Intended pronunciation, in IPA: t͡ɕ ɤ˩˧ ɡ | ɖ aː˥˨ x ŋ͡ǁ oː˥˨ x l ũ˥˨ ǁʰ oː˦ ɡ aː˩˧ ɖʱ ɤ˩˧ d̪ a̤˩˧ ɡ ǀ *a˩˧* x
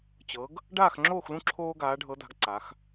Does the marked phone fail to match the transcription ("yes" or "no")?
no